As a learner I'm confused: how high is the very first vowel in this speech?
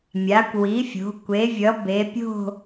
low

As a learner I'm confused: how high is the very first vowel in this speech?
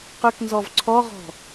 high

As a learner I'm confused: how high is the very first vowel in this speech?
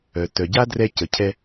mid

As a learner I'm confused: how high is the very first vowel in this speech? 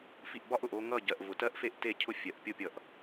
high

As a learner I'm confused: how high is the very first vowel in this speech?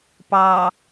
low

